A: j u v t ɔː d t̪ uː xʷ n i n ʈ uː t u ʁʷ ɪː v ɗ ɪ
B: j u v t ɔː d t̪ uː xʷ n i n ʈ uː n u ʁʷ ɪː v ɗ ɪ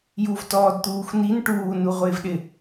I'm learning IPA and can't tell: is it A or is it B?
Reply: B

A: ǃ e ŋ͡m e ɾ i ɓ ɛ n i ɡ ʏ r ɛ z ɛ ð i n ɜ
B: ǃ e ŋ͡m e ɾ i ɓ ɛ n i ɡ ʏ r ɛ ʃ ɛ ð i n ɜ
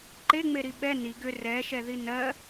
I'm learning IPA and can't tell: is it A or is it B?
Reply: B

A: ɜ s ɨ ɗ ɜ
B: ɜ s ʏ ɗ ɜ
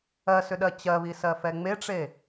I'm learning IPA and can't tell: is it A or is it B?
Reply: B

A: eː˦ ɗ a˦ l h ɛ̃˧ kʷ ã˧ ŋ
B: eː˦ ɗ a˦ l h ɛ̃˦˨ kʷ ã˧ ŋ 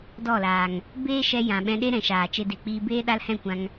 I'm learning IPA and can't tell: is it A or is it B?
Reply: B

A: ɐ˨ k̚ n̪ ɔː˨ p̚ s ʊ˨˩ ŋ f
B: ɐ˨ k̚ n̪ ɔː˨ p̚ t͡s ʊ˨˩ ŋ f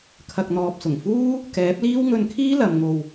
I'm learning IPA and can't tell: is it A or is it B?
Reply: A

